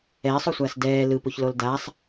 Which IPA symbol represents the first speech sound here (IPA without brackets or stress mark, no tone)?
ɛː